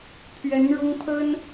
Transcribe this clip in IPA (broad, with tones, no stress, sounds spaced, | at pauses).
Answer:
pʰ ɥ ɛ˧˥ n ɻ ʊ˥ ŋ pʰ ə˥ n